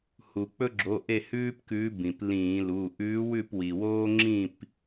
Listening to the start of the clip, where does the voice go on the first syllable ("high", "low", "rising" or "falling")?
low